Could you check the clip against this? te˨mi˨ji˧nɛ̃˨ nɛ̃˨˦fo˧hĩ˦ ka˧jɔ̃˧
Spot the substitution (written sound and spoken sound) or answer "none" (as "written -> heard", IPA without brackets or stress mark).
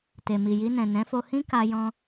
none